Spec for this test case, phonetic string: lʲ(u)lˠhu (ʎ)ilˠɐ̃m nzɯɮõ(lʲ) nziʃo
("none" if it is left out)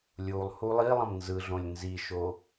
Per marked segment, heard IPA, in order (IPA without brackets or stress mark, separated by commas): u, lˠ, lʲ